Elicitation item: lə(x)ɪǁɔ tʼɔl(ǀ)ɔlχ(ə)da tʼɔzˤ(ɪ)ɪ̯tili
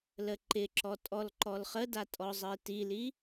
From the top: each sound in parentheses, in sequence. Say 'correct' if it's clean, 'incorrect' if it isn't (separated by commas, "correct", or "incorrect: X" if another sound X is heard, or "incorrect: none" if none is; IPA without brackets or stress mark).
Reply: incorrect: ǃ, incorrect: ǃ, correct, incorrect: ə